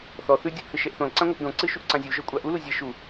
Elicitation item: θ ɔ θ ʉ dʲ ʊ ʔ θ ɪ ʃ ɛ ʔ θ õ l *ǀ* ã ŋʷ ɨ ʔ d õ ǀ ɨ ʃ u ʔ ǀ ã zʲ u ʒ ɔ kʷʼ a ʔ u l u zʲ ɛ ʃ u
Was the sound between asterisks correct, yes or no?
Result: yes